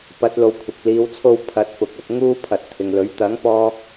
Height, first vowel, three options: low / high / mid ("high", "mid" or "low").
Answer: low